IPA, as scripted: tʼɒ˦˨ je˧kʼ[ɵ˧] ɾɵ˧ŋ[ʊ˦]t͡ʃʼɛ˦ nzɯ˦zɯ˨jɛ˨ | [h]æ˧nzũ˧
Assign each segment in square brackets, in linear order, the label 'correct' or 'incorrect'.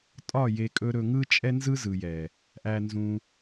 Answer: incorrect, incorrect, incorrect

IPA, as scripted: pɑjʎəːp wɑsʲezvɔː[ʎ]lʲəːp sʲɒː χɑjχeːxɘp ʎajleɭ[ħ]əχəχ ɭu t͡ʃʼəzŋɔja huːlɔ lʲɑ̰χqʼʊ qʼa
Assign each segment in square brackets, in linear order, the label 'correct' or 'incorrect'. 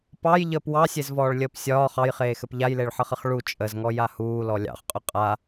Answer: incorrect, correct

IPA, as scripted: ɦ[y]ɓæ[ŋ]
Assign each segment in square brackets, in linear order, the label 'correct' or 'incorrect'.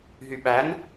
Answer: correct, incorrect

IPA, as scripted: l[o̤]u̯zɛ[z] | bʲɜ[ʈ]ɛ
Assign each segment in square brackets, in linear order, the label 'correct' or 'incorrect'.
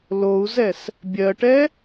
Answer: incorrect, incorrect, correct

